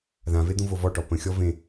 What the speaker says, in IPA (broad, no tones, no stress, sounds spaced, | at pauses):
ð ã v e d̪ ũ v o v ɔ ʈ ɔ p ə̃ xʲ ɔ v ẽ